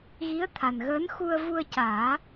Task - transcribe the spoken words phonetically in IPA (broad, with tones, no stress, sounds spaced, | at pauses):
ɣ i˧˥ ə̯ t̪ʰ a˨˩ n ɣ əː˧˥ n x u˧ ə̯ v u˧ ə̯ c aː˨˩˦